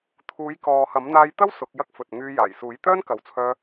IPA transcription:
t̪ʰ uː˨˧ j k ɔː˨ h ɐ˨˥ m n̪ aː˥ j t̪ ɐ˥ w s ʊ˨˥ k̚ j ɐ˥ k̚ f ɵ˨ t̚ ŋ yː˧ j aː˨˩ j s uː˨˥ j t̪ œː˥ n k ɐ˨ w t͡sʰ œː˧

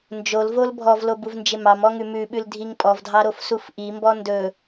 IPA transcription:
n d͡ʒ o l v o l bʱ ɔ v l o b u v n d͡ʒ ɪ m ɑ m ɔ ŋ ʉ m ʉ ɓ ʉ l dʱ i ŋ pʼ ɔ v dʱ ɑ ɾ o f s u f ʔ i m b ɔ n d ɵ

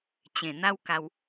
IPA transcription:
t͡ɕ ẽ˨˩ n̪ a˦ w k a˧ w

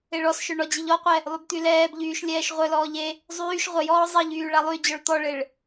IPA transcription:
e ɭ ɔ s ʃ œ ɳ ɔ d͡ʑ i ʎ ɔ qʷ ɛ | lˠ y b t̪ y l ɛː b ʎ yː ʃ lʲ ɛː ʃ ʁʷ œ l ɔː ʎ e | zˤ yː ʃ ʁʷ ə j ɔː zˤ i ʎ yː ɭ a lˠ y d͡ʑ ɔ ɭ t̪ ɔ ɭ e ɭ

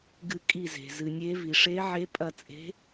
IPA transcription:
ɡ ɨ˧˩ kʼ i˧˩ z e̤˩ z ɨ˩ nʲ e˨˦ v i˩ ʂ e˨˦ ʕ e˨˦ pʼ ɐ˧˩ t͡sʼ e̤˨˦

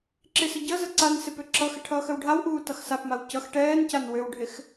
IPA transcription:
ǁ ɪ s ə ɟ ʌ z ə ǀ a n s ɪ p ø ǁ ʌ x ɪ ʈʰ ʌː x ə w ɖʱ a w ʔ uː t ʌ x s a p m a w c ʌ x ʈ ɛː n c a n w ø w ɖʱ ɪ x

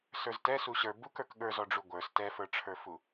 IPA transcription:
s ə˞ z t ɛ s u ɕ ə˞ b u k ə˞ k ɠ ə˞ z ɔ ɖ͡ʐ u ɡʷ ə˞ s t ɛ f ə˞ ʈ͡ʂʰ ə˞ f u

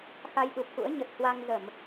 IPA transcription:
x a˧ j ɗ u˨˩ p̚ x ṵ˧˥ ə̯ ɲ ə˨˩ t̚ h w a˧ ŋ z ə˧˩˨ m

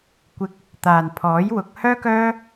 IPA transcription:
kʷ ɪ˧ k̚ | t̪ aː˨ n pʰ ɔː˨˥ j w ʊ˨˥ k̚ h œː˥ k œː˥

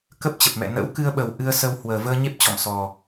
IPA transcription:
k ə˦˥ p̚ t͡ɕ ə˨˩ p̚ m ɛ̰˧˨ n ə̰˧˥ w k ɨ˧ ə̯ ɓ ə˨˩ w ʔ ɨ˧ ə̯ s ə˧ w h w əː˨˩ v əː˧ ɲ e˦˥ p̚ t͡ɕ ɔ̰˧˨ m s ɔ˨˩

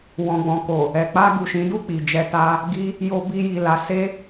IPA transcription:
w ɔ̃˨ ɡ͡b ɔ̃˨ k o˨ | ɛ˨ k͡p a˧ ɡ u˨ ʃ ĩ˨˦ d u˦˨ k͡p i˨ d͡ʒ ɛ˧ t a˦ | ɡ i˦ | j o˧ b i˧ j i˨ l a˨˦ s e˦

